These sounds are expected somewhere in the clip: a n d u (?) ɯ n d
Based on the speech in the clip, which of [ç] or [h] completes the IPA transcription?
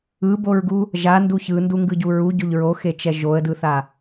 ç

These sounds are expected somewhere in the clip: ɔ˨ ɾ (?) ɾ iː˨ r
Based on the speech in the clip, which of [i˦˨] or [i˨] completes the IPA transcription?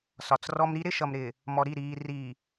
i˦˨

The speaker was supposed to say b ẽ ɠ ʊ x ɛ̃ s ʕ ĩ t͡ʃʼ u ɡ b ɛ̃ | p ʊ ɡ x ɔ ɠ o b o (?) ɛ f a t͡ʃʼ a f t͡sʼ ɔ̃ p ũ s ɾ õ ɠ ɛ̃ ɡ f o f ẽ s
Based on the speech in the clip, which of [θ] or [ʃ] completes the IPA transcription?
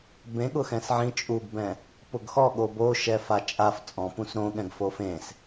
ʃ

